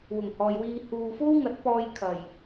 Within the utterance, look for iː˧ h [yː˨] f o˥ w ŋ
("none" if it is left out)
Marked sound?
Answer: uː˨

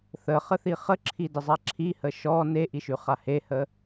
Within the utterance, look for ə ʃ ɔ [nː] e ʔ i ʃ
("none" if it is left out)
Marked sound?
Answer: n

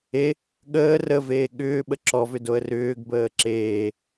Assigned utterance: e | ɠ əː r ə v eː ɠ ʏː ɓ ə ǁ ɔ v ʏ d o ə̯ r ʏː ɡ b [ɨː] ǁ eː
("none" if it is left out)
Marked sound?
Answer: əː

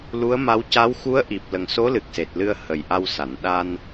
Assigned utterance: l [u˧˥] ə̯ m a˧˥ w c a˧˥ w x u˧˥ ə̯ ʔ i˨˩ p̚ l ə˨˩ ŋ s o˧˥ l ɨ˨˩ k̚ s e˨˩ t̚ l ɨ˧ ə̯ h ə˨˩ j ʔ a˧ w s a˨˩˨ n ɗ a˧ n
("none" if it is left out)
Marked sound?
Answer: u˧˥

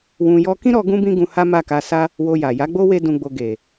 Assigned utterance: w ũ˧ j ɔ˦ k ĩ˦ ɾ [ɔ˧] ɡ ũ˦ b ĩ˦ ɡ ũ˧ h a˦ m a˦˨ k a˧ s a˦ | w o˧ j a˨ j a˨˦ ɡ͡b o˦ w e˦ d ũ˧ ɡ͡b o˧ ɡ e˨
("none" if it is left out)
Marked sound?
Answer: ɔ˧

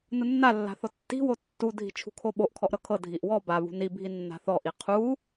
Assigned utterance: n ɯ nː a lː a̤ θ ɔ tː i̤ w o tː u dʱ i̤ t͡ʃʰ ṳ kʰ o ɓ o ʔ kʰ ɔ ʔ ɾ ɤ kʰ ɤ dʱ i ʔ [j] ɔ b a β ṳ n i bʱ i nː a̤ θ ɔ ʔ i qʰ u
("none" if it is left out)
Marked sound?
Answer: w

